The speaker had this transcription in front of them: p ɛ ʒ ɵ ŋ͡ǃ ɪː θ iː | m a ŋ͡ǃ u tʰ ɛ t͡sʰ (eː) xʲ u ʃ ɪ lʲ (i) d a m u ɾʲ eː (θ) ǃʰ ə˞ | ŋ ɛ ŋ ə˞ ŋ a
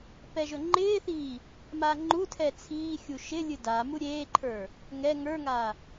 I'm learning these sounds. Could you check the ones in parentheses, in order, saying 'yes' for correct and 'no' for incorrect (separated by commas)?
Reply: no, no, no